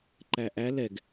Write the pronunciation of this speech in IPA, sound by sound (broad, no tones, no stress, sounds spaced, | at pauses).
ǃ æ ʔ æ l ɛ ɡ